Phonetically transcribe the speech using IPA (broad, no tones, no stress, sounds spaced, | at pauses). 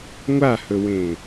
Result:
ŋʷ a h ɵ w ẽ